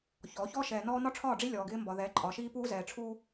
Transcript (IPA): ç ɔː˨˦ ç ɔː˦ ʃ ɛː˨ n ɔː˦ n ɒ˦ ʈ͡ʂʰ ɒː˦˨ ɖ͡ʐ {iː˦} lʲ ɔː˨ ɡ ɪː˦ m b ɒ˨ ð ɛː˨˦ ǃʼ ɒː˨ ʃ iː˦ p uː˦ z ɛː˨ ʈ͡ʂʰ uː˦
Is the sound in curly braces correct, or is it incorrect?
incorrect